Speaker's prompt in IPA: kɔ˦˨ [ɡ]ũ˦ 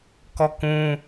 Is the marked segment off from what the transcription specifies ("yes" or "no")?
yes